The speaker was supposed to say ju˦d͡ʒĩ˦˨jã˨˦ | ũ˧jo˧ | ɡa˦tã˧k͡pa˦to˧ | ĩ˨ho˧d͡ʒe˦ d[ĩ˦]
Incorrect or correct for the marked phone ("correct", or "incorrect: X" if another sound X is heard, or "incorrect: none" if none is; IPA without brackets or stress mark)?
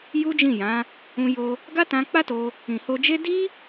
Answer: incorrect: i˦